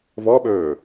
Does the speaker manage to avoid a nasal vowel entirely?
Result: yes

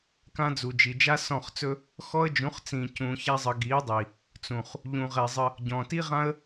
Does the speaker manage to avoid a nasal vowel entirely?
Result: no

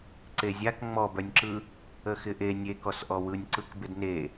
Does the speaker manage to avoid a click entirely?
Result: no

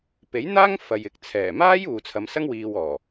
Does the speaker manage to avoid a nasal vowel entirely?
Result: yes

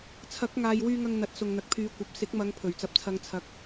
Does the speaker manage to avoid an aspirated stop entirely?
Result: no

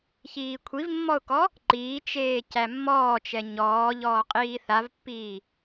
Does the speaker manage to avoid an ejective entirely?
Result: no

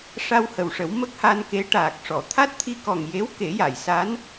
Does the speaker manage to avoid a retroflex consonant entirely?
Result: no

